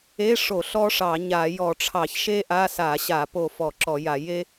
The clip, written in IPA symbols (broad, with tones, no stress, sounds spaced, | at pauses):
e˧˥˧ ʂ o˧˩˧ ɬ ɔ˥ ʂ ɑ˧˩˧ ɲ a˧˩˧ j ɔ˧˩˧ ʈ͡ʂʰ ɑ˧˩˧ ç ʃ e˥ ʔ a˧˥˧ s a˧˩˧ ɕ a˧˩˧ p o˧˩ f ɔ˧˩˧ ǁ ɔ˧˩˧ j a˧˩˧ j e˥